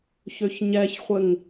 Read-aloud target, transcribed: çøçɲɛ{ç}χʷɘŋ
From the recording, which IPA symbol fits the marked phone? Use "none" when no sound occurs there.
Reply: ç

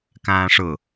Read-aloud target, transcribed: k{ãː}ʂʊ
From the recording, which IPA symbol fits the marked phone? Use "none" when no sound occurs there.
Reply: ãː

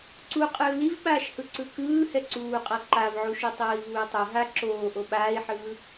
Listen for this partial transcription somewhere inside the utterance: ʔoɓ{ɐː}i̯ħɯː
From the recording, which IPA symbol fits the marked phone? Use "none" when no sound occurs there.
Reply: aː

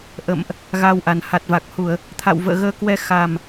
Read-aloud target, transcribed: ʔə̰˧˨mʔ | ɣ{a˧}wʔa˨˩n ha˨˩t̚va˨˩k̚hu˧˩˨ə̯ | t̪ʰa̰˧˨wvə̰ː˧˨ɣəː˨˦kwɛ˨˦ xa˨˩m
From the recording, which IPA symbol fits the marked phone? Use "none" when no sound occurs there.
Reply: a˧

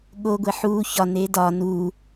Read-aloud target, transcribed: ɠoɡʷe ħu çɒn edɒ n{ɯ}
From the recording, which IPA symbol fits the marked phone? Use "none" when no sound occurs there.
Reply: u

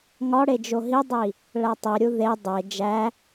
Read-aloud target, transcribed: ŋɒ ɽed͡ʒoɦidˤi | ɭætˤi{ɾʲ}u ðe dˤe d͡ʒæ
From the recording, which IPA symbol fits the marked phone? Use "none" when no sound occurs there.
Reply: ɾʲ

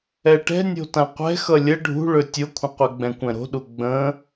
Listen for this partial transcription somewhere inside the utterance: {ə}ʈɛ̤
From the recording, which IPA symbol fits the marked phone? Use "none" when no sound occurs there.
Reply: ɛ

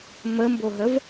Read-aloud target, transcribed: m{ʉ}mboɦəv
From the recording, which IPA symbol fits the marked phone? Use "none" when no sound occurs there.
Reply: ə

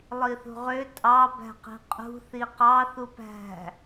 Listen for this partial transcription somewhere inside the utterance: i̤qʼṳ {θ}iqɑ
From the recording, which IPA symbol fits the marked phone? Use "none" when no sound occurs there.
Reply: θ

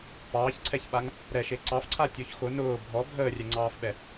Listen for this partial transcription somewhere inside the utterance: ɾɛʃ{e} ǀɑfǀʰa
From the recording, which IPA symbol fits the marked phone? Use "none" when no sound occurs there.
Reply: e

